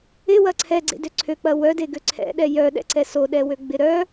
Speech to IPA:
ɪwɐ ǀʰɛɡ͡ǀḛdø ǀʰøk͡pɐ wœdeɡø ǀʰɛ̰ɗɛ jœɗɛ̰ǀɛ soɗɛwøɡ͡bɪ ɾœ

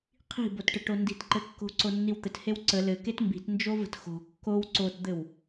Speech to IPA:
qʰi̤botʈəʈo ndi̤tǃɘ kːo̤ǀonːiw t̪ɘthew ǀə lɘket mbi̤tnd͡ʒovə̤t xo̤ kːow ǀotd̪ɘw

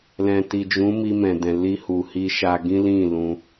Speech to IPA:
lɛ̃˨ti˨d͡ʒũ˨˦mi˧ mɛ̃˨dɛ̃˨ li˧hu˨hi˧ʃa˧ ɡĩ˦lĩ˦˨ lũ˧

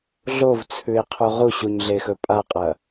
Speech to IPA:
ɮovt͡sʰʉe̯qʰu ʁuɕuɲɮexɵ pʼaqʼɐ

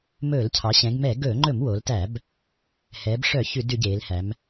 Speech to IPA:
mɵː˧˩˧lcʰɑ˩˧ɕɛ̃˩˧ɡmɛː˧˩˧ ɡɵː˧˩˧ŋ͡ǃɵ˧˩˧m wo˩˧ltæ˧˩˧b | hɛː˩˧bʂœ˧˩˧ çʉ˧˩˧dʉ˧˩˧ɟeː˩˧lhæ˩˧m

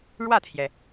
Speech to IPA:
ɻwä˥˩t̪ʰjɛ˩

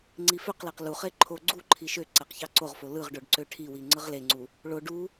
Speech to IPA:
ŋ͡ǀiføqleq luχe ǃʰo ɡ͡ǀu ǃʰiʃøǀæq çɑǀoʁfo lɯʁɖoɖ ǀøʈʰiwi ŋ͡ǀɯʁleŋ͡ǀu | ɭo ɖu

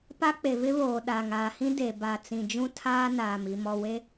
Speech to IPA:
pa˦k͡pe˨vɪ˦βoː˨ ɗa˨ŋaː˨hĩ˦ de˨ba˨ t͡sĩ˨d͡ʒũ˦ tʰaː˦naː˨m i˨mɔ˨we˦

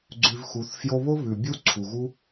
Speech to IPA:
ɡ͡ǀʉ˧vxu˨˦θ fjo˧βo˦ βʉ˨bʲu˦ ǀʰu˨ɣu˦

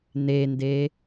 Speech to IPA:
nende

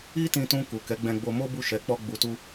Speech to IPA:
i˦tĩ˧tũ˧ ku˨kɛ˨˦ ɡ͡bɛ̃˧ ɡ͡bo˧mo˦bu˦˨ ʃɛ˨˦ k͡pɔ˦ɡ͡bu˧tu˦

